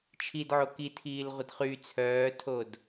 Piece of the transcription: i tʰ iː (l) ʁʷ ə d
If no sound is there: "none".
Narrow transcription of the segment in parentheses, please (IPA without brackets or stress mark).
l